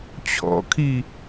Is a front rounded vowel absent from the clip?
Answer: yes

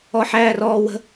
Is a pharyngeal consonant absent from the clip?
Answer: no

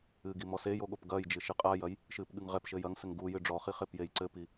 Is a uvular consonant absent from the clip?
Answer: no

